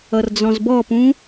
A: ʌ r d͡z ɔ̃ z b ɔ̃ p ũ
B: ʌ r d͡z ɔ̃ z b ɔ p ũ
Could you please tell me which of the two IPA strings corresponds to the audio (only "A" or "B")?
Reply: B